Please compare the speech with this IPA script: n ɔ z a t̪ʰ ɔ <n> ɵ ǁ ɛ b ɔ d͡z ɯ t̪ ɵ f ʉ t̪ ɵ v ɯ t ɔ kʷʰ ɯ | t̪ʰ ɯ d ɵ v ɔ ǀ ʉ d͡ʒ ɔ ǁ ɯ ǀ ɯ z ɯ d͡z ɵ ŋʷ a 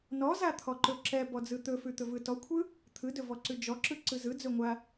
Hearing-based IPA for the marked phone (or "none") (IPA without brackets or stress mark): ǃ